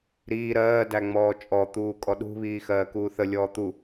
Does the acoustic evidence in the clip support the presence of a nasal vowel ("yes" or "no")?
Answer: no